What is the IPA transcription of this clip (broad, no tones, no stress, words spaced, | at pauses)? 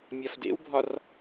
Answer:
mʲɒfdḛwbʱɒr